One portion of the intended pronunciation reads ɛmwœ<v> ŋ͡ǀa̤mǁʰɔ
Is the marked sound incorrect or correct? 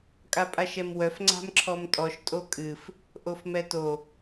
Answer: incorrect: f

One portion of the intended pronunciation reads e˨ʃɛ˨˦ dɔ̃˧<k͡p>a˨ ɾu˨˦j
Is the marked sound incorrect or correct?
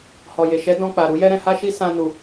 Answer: correct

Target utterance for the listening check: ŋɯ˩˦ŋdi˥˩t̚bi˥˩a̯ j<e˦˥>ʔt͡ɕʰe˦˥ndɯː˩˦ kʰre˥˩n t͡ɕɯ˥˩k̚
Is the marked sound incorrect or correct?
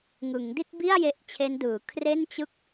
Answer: correct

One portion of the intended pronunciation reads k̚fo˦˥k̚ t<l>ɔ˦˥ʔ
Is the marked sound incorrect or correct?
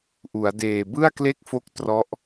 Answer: incorrect: r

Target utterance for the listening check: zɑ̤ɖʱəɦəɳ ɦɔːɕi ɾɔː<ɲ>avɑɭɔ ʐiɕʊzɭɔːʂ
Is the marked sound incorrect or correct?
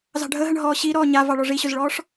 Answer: correct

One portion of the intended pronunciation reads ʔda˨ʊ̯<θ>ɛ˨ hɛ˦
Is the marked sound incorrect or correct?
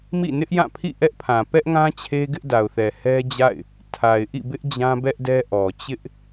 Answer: correct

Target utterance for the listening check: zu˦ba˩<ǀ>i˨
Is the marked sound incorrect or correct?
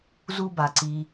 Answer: correct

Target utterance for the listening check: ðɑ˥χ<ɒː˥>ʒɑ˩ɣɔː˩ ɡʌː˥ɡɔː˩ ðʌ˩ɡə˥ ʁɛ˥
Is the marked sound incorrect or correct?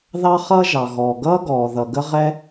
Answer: incorrect: ʌː˥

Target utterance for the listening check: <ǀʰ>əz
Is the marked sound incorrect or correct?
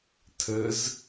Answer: incorrect: tʰ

